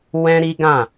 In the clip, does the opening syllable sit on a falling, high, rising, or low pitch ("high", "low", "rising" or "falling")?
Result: high